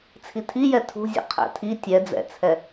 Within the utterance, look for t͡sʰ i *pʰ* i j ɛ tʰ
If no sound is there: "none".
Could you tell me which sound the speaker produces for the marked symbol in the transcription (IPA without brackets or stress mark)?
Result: tʰ